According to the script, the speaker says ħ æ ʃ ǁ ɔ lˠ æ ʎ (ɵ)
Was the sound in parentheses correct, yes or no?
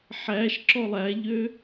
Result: no